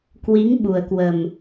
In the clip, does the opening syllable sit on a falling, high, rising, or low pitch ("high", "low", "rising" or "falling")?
rising